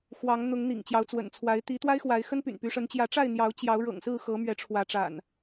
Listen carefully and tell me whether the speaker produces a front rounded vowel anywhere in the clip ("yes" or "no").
yes